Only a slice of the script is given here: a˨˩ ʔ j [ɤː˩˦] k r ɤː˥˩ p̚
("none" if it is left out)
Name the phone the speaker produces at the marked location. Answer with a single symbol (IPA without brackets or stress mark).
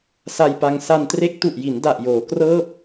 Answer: oː˩˦